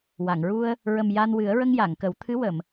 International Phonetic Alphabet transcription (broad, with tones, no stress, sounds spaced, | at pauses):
w a˨˩˨ ŋ ɹ u˧ ə̯ | ɹ ə˨˩ m j a˧ n w ɨ˨˩˦ ə̯ ɹ ə˧ ŋ j a˨˩˨ ŋ k ə˨˩˦ w t̪ʰ ɨ˧˥ w ə˨˩˨ m